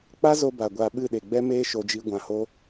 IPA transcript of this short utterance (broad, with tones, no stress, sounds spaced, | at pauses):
k͡p a˦ z o˧ b a˨ ɡʷ a˧ ɓ ɨ˦˨ ɗ e˨ ɡ͡b ɛ˦ m eː˦ ʃ o˧ d͡ʒ i˦ ɡʷ ã˧ h o˦